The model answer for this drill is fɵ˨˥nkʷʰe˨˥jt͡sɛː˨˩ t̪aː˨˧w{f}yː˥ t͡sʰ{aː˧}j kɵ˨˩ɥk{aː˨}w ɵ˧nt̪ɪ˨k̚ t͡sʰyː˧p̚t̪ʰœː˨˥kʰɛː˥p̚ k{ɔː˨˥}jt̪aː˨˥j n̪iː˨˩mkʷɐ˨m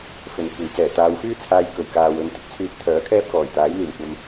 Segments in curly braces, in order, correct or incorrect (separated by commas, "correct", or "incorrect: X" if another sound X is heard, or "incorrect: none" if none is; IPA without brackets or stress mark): correct, correct, correct, incorrect: ɔː˨˩